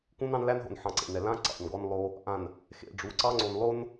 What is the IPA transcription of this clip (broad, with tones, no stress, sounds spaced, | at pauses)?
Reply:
k ũ˦ n ɑ̃˦ n l æ˦ n ɦ o̰˨ n ħ ɑ̃˨ ǀ ḛ˨ n ɛ˨ l ã˦ ǀ ɑ̰˨ n ɡ ɔ˦ n lˠ o˦ | ʔ ã˨ n | x ḛ˨ ɖ͡ʐ u˨˦ ǀ ɑ˦ ŋ͡ǀ o˨ n lˠ o˦ n